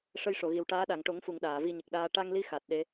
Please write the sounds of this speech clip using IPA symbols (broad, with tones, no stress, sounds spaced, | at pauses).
ʂ ə˧ j ʂ o˨˩˨ ɣ i˨˩ w ʈ aː˧˥ ɗ a˨˩˨ ŋ ʈ o˨˩˦ ŋ f u˨˩˨ ŋ ɗ aː˨˩˨ v i˧ ɲ ə˨˩ k̚ ɗ aː˧ ʈ a˧ ŋ l i˧˥ x a˨˩ t̚ ɗ e˧˥